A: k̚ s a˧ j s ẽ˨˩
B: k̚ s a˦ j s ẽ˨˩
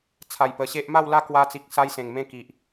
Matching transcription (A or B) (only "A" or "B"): B